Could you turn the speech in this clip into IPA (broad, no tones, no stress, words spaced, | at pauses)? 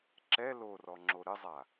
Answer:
ǁɛ lorɔ ŋ͡ǁoɾɘzˤa